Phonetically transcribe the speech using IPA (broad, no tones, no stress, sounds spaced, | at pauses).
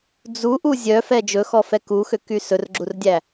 d͡z u ʔ u zʲ œ f ɛ d͡ʒ ɵ x ɔ f ɛ k u x ø k y s ɵ r ɡ͡ǁ u r dʲ æ